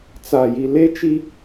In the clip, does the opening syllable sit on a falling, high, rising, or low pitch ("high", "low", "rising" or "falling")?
low